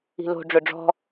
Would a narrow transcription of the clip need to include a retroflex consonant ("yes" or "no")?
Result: yes